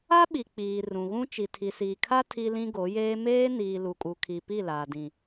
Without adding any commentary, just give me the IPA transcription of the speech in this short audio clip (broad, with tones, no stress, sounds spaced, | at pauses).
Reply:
a˦ ɓ i˨ k͡p iː˨ r ũ˨ ɣ ũ˦ t͡ʃ i˨ tʰ i˨ s iː˨ kʰ a˦ tʰ i˦ l ĩ˦ ɡ o˨˦ j eː˦ m eː˦ n iː˨ l u˨ kʼ u˨ kʰ i˨ p i˦˨ l aː˨ d ĩ˨